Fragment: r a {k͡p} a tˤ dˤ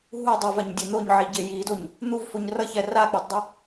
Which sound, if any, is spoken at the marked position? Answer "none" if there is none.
k͡p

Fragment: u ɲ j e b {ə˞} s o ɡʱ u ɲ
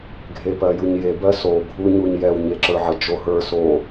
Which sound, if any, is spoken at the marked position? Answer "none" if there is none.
ɜ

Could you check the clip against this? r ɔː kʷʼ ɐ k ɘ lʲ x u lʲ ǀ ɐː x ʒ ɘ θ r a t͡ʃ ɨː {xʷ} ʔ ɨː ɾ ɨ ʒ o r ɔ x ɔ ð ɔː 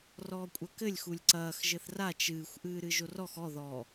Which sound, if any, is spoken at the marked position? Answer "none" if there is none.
xʷ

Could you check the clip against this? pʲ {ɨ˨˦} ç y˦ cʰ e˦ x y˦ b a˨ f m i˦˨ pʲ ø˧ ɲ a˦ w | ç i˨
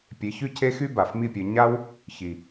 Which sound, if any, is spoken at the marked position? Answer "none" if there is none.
e˨˦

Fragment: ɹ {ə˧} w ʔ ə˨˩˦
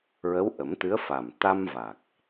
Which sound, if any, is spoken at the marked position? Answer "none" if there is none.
ə˧˥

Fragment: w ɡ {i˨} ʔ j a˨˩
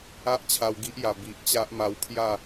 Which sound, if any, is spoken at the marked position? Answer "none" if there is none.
i˦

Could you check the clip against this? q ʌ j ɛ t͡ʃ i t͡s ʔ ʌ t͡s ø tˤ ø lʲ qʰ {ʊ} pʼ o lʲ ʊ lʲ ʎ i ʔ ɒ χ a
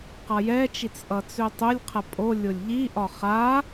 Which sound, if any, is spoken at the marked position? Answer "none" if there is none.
ə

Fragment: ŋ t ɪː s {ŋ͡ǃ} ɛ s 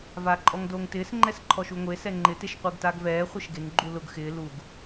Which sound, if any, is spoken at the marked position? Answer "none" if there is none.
ŋ͡ǃ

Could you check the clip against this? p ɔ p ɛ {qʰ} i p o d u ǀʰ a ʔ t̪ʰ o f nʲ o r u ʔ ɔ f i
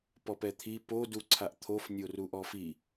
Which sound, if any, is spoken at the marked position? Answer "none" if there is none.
t̪ʰ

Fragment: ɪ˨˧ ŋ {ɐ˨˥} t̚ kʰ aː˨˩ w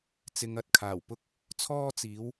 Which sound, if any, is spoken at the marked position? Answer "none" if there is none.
ɐ˨˥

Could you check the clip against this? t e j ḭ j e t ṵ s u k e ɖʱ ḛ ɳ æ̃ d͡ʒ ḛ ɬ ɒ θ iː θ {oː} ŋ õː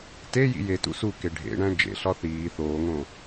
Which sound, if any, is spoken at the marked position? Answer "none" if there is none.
oː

